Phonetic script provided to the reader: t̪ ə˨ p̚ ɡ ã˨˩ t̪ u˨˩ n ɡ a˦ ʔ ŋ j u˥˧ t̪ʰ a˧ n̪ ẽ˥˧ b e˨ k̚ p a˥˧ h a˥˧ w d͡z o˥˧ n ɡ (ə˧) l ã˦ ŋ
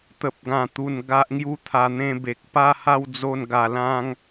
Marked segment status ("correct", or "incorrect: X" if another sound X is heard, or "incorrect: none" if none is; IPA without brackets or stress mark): incorrect: a˧